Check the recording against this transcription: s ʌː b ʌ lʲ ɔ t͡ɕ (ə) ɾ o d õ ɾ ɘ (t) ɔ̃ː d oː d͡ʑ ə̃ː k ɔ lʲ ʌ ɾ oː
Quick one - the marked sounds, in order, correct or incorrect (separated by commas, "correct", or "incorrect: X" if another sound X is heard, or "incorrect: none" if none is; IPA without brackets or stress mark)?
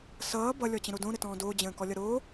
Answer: incorrect: ə̃, correct